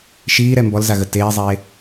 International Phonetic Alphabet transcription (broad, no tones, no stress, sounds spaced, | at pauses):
ʃ iː ɾ ɛ m b ɔ l z a ɣ ə t eː zˤ eː